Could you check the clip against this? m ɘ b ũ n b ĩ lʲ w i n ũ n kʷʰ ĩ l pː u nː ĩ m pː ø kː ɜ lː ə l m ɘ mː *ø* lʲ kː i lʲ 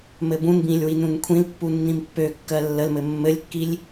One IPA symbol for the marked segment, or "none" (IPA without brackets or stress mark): ɘ